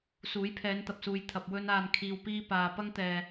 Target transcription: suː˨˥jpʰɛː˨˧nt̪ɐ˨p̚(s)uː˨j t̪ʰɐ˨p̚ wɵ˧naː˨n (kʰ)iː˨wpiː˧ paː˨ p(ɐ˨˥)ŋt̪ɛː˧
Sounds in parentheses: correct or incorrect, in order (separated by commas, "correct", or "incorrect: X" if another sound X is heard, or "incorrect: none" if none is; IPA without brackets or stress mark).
correct, correct, incorrect: ɐ˥